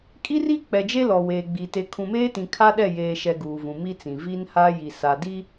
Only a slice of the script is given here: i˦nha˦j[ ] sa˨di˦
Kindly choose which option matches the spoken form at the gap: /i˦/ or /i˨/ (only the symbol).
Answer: i˨